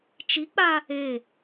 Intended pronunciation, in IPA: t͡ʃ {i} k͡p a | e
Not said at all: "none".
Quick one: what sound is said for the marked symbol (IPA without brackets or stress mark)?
i